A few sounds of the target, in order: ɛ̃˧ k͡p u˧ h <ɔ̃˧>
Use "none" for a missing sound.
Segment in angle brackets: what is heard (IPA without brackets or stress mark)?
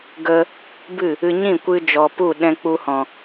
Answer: ɔ̃˨